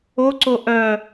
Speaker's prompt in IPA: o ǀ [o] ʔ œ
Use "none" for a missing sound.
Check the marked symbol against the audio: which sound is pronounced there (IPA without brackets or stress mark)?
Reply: o